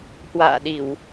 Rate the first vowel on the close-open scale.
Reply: open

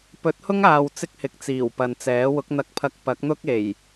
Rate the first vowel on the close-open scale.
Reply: mid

